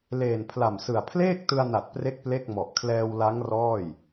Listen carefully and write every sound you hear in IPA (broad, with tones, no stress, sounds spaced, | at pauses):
l eː˨˩ n pʰ l a˨˩ m s ɯ˨˩ a̯ pʰ l eː˥˩ k̚ t ɯ˧ a̯ n a˨˩ t̚ p r e˥˩ k̚ p l e˥˩ k̚ m ɔ˨˩ ʔ kʰ l ɛː˧ w l a˦˥ ŋ r ɔː˥˩ j